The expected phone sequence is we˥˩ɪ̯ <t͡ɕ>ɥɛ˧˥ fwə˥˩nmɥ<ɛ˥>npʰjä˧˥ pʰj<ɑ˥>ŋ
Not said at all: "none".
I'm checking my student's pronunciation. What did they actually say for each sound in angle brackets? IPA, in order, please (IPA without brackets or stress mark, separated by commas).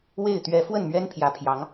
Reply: t̪, ɛ˥, ɑ˧˥